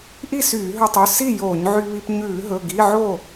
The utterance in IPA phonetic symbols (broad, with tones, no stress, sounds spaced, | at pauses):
ʔ i˥˨ s yː˧˩˧ ɦ ɵ˧ tˤ ʉ˩˧˩ s i˥˨ j oː˧˩˧ ɲ ʕ y˧ β i˧ p ɲ ʉː˧˩˧ ɦ ɵ˩˧˩ ɡ i˧˥˧ ʕ o˥˨